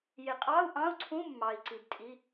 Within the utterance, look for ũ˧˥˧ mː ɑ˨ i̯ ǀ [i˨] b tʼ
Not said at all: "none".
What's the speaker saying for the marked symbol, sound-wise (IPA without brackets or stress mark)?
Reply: i˨